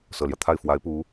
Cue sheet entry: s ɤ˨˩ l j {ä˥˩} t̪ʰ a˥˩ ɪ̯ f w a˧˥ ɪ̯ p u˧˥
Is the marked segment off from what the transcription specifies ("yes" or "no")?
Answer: yes